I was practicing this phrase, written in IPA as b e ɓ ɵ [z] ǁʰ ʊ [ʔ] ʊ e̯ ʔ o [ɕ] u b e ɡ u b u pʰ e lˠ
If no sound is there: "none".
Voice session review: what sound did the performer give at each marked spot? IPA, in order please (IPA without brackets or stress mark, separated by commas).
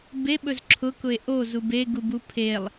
z, k, z